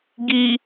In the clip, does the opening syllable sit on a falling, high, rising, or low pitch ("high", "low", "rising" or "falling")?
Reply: low